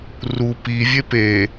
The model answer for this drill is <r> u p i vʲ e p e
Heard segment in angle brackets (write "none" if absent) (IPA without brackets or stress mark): r